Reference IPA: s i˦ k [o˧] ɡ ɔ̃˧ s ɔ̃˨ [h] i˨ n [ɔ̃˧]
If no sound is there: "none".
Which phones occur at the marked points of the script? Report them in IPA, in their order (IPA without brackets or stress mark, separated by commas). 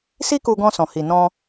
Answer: u˧, h, ɔ̃˧